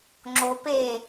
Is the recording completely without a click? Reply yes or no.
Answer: no